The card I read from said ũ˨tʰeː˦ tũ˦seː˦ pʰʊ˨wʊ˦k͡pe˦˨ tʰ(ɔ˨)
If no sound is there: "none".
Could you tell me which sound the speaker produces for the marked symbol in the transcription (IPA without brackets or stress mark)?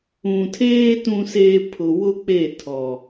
ɔ˨